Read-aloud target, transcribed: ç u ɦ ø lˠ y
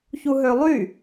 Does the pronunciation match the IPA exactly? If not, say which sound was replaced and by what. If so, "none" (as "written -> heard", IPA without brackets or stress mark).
none